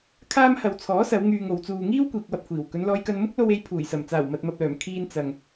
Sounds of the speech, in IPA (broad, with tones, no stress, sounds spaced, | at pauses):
kʰ aː˥ m h ɐ˧ w t͡sʰ ɔː˨˥ s ɐ˨˧ w ŋ yː˨ ŋ o˨˧ w t͡s uː˧ ŋ iː˥ w kʷ iː˨ k̚ w ɐ˧ p̚ kʷʰ iː˨˩ w k ɵ˨˧ n l ɔː˧ j k ɐ˧ n m ʊ˥ k̚ l o˧ w e˧ j pʰ uː˨˩ j s ɐ˨˩ m t͡s aː˨˩ w m ɐ˨ t̚ m ɐ˨ p̚ l œː˨˩ m kʰ iː˧ n t͡s ɐ˨ ŋ